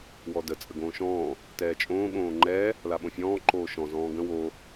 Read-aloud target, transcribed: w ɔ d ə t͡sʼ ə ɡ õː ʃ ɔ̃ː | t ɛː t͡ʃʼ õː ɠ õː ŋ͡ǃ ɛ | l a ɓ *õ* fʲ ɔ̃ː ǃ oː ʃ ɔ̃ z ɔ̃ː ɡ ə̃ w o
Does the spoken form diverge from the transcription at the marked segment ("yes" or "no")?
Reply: no